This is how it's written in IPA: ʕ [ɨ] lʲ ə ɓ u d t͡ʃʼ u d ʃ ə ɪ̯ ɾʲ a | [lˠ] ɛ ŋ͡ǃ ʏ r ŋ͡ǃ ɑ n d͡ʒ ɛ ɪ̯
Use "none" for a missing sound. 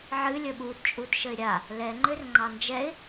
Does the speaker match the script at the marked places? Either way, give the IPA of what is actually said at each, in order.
ɨ, l

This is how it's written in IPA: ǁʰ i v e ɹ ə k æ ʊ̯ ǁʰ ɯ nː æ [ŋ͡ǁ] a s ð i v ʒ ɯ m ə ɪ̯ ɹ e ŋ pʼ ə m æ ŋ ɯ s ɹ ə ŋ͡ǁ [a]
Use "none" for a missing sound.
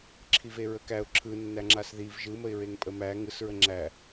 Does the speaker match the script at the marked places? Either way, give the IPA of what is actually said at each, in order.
ŋ͡ǁ, æ

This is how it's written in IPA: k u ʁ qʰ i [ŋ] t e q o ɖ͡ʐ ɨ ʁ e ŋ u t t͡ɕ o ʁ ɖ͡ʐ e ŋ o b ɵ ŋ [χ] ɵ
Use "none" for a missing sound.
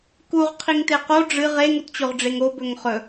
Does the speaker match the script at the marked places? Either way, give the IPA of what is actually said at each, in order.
ŋ, χ

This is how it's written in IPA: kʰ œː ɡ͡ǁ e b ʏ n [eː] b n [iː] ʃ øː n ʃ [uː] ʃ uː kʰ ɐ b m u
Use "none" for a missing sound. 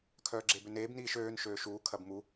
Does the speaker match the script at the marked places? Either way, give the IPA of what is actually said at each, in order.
eː, iː, øː

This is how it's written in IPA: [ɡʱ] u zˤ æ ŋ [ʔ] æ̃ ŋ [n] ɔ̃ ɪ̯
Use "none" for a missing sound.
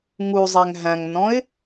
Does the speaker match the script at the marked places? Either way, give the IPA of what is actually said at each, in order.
ŋ, ɦ, n

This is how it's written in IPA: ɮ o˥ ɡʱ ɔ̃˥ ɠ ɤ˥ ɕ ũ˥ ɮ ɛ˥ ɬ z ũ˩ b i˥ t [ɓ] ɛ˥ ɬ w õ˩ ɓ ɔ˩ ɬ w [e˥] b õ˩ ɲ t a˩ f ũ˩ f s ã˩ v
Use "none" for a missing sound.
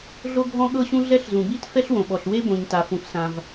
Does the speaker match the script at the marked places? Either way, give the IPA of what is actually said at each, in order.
f, e˥

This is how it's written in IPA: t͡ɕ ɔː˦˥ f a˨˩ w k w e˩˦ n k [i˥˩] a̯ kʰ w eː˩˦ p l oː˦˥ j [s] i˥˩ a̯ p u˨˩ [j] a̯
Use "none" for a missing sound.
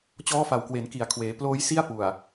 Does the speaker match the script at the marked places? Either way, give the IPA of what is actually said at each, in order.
i˨˩, s, none

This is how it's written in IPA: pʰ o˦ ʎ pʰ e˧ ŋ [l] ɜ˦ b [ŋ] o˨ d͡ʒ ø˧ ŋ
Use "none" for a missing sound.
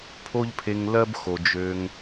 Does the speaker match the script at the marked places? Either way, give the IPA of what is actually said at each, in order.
l, x

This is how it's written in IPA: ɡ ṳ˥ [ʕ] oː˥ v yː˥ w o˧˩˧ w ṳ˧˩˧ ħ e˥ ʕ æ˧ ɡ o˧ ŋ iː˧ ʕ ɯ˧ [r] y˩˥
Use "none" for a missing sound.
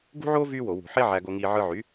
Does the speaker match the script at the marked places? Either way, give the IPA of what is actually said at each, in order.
ʕ, ʕ

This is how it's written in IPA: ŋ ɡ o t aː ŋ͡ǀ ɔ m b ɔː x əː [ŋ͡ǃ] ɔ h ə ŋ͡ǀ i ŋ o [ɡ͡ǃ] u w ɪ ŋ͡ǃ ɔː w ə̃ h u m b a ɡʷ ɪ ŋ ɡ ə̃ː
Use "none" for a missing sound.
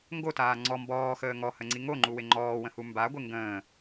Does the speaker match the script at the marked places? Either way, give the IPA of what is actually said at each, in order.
ŋ, ŋ͡ǃ

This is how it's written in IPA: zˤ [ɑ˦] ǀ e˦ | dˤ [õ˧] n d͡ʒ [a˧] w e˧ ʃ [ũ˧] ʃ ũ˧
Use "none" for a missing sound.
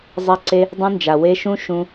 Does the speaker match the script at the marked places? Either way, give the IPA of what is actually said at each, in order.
a˦, ũ˧, a˨, ũ˦

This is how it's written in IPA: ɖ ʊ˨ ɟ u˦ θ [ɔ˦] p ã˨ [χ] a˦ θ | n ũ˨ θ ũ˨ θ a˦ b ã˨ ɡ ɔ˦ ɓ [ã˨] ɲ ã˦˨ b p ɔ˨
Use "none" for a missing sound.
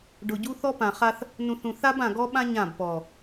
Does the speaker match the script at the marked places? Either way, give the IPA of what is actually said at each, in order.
ɔ˦, χ, ã˦

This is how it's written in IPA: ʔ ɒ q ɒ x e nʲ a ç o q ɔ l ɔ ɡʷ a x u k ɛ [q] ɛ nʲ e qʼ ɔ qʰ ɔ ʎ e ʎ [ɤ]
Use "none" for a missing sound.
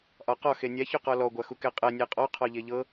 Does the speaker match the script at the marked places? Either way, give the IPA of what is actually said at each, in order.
qʼ, ɤ

